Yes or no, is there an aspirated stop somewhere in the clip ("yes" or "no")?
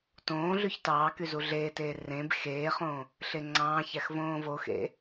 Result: no